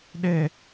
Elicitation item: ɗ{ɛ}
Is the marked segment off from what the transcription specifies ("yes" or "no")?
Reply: no